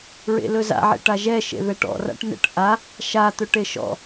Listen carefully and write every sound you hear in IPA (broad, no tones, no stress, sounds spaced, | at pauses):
ɹ ḛ l ɵ z a̰ ʕ ḛ ʈ a ʒ ɛ ʃ ḛ ð ɛ ʈ ɔ̰ r a̰ ʈ n ɛ̰ ʈ ʔ a | ʃ a t̪ ɵ ʈ e ʃ ɔ̰